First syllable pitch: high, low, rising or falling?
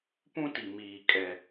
high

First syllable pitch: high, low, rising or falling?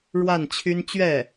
falling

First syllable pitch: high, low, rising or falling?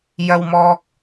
low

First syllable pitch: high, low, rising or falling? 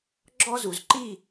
high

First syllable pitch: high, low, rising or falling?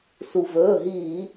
low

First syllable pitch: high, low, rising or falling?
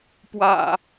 low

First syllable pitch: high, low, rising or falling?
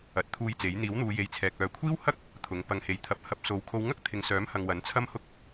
rising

